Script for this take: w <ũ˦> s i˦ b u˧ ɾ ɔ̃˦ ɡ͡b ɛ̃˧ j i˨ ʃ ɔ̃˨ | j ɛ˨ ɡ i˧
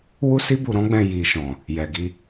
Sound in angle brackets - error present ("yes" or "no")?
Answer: yes